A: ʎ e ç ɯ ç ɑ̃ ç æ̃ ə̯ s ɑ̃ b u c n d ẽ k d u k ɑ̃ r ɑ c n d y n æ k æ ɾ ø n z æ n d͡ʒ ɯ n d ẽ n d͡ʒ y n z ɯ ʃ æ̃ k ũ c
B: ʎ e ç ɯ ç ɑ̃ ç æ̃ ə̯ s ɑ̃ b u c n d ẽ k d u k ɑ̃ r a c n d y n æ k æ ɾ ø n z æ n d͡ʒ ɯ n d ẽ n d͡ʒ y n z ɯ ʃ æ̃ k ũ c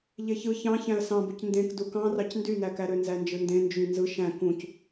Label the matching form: A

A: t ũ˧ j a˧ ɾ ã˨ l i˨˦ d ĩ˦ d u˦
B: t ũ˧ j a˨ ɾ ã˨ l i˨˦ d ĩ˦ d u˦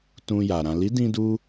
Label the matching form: B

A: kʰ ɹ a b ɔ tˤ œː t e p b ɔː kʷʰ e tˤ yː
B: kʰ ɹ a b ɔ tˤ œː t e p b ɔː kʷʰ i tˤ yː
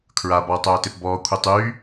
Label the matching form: B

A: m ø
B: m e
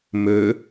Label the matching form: A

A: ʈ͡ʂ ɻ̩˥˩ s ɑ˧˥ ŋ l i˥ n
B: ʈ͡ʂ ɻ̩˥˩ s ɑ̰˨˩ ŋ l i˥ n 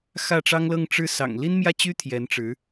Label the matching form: B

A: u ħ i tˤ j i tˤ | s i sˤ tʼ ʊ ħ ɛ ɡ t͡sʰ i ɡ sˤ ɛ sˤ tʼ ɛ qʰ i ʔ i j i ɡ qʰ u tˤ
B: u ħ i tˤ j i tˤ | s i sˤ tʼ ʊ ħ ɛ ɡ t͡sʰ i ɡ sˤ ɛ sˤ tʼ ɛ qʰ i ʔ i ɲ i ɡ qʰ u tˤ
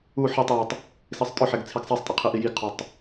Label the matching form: A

